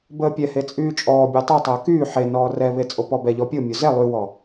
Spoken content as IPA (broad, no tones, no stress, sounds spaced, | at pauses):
b əː pʲ ɛ h e t͡sʼ yː t͡ʃʼ ɔː bʲ ɔ tˤ y tˤ əː k yː ħ e n ɔː r ɛ β e t͡sʼ o p ɔ b ɛ ʎ ɔ pʲ o mʲ o z ɛ lˠ y w ɔ